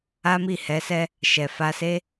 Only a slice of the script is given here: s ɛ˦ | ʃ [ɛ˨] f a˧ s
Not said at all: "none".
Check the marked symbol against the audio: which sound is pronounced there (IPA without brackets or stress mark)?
ɛ˨